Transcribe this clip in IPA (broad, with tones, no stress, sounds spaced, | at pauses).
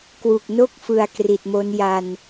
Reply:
k w u˨˩ k̚ n o˥˩ k̚ f ɯ˨˩ a̯ k r i˨˩ t̚ m o˦˥ n j a˧ n